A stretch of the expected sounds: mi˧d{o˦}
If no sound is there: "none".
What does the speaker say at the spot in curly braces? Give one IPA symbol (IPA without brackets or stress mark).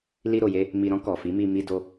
o˧